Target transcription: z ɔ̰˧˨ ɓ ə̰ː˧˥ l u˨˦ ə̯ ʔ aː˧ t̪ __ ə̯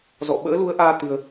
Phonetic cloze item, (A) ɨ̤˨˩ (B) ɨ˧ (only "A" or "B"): B